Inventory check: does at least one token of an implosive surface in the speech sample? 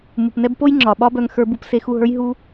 yes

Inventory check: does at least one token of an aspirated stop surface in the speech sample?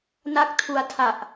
yes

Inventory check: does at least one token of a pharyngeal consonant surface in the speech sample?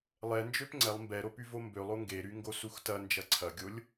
no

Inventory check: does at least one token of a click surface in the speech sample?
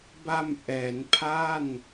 no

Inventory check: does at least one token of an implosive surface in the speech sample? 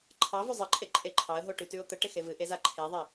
no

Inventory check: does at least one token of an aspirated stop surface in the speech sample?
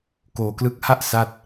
no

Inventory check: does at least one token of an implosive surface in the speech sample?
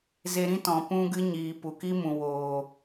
no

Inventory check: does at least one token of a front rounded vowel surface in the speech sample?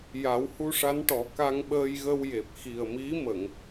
no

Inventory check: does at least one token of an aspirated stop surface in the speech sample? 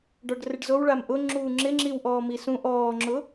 no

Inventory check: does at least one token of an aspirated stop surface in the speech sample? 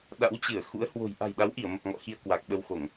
no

